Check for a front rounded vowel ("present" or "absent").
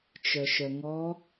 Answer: present